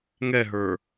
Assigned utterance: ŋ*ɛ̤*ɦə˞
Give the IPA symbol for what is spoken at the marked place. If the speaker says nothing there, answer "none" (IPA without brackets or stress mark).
ɛ